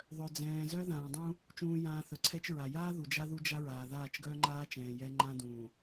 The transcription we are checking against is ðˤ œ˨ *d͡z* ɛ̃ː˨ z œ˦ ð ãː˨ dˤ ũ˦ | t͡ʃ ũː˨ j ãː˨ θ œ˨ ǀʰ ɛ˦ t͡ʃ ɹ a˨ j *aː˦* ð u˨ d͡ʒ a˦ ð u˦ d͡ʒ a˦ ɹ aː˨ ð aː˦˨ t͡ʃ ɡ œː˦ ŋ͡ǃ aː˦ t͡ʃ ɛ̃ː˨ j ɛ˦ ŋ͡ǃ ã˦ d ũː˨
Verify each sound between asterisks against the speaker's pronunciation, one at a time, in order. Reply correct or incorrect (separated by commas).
correct, correct